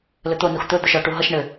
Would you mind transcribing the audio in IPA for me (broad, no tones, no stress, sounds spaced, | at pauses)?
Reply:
l ɘ t̪ o n u x t̪ ɵ d̪ ɵ ʃ ɔ ʈ u ɦ ʌ ʃ ɳ ɘ